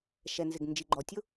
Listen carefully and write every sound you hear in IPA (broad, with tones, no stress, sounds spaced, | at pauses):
ʃ ɛ˩ n z ɪ˩ ɡ n d͡ʒ i˩ ɡ͡ǃ ɔ˩ tʲ ʊ˥